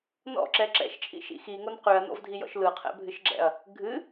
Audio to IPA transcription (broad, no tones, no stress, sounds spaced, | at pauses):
n ɔ̰ ǁ ɛ ǁ ɛ̰ ʃ t͡ʃʼ ḭ ʃ ḭ x i ŋ o n q ʉ ɐ̯ n ɔ̰ v dʱ i j ɔ̰ ʃ l ɯ qʰ ɛ̰ bʱ ɨ ʃ ɡ͡ǁ ɛ̰ ɐ̯ | ɡʱ ɨ